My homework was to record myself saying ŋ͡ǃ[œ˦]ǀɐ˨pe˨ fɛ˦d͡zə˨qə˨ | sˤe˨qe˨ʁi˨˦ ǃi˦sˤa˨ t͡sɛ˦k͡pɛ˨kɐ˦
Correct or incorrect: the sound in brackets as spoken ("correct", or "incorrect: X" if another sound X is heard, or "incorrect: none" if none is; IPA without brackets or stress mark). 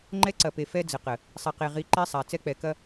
incorrect: ɛ˦